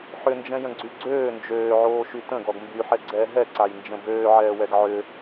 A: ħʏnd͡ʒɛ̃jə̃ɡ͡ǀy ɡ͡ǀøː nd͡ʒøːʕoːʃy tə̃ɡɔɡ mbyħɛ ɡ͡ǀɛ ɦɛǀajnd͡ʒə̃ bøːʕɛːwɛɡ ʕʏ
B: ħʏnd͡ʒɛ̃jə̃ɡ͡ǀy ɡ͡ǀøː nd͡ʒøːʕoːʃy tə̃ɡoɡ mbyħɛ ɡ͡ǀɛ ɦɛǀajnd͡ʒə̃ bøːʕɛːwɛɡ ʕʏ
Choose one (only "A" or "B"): A